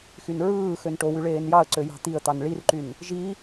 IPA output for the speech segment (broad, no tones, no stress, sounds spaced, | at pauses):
x y n ɹ ɯː x ø n ʈ o w y ɭ eː n j ɑ ə̯ ǀ ø j ɑ̤ t̪ i ə̯ t̪ ɑ n ɭ i r ǃ y n | ʒ i